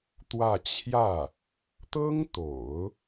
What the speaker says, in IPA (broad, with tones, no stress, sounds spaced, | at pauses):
t̪ w ä˥˧ t͡ɕʰ j ä˥˩ | t̪ ɤ˥ ŋ t̪ o̰˨˩˦ ʊ̯